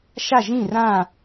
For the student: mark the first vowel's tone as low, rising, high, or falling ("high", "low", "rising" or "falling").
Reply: falling